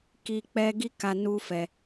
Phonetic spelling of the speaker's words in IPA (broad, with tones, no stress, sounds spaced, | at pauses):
k i˧ k͡p ɛ˦ ɡ i˦ k a˧ n u˦ f ɛ˧